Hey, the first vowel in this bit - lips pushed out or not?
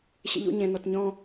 no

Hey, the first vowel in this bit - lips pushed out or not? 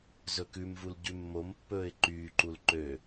yes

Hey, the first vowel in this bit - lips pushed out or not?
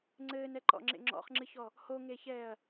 no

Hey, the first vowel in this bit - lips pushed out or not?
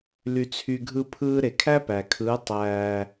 yes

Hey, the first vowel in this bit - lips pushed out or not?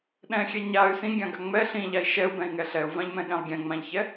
no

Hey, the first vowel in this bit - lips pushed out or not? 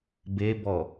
no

